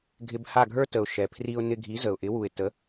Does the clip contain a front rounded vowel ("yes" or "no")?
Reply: no